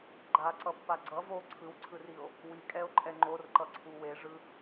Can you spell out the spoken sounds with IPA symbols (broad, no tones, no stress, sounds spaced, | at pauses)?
ɡ͡ǃ a ǀ ʌ pː a ɡ͡ǀ ʌ v o ǀʰ ɯ w ǀʰ ɯ r i o̯ | w i kʼ ɛ o̯ ǃʼ ɛ ŋ͡ǃ o r ǃ ʌ ǀʰ u w e ʐ ɯ